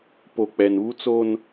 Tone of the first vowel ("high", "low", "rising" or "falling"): low